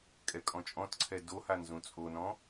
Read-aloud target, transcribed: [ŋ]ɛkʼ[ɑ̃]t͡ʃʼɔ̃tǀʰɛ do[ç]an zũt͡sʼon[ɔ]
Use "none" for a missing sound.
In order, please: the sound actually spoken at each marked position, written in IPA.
kʼ, ɔ̃, h, ɔ̃

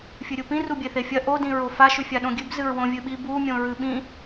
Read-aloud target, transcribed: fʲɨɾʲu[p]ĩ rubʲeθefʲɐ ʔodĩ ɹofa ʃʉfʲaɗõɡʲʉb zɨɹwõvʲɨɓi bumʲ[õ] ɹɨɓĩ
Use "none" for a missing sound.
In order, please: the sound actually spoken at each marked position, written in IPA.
p, õ

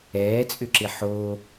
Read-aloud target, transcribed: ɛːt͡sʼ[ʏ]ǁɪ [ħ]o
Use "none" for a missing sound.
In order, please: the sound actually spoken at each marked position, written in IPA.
ʏ, ħ

